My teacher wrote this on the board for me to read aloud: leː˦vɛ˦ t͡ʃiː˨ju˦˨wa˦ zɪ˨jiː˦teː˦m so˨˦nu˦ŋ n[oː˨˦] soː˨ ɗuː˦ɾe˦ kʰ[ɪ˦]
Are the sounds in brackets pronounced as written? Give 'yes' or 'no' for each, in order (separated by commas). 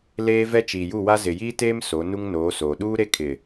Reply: yes, no